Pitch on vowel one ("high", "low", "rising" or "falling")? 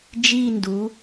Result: falling